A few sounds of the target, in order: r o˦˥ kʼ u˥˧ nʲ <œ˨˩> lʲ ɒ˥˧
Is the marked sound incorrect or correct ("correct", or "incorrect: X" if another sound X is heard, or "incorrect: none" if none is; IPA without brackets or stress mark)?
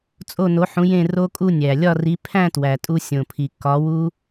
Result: incorrect: æ˨˩